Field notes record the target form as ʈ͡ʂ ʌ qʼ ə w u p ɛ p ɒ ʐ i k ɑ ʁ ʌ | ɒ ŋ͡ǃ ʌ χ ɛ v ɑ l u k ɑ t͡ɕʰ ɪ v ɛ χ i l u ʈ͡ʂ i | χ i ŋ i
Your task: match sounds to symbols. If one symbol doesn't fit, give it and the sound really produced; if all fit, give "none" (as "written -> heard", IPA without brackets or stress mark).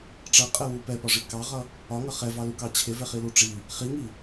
ŋ͡ǃ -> ŋ